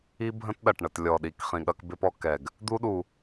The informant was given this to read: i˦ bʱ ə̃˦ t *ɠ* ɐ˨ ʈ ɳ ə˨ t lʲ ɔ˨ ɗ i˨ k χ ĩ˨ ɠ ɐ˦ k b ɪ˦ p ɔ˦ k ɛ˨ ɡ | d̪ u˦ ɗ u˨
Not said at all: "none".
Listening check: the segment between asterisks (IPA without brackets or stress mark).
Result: ɗ